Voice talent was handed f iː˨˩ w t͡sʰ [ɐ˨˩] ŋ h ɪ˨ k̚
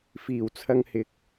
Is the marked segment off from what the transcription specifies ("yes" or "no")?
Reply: yes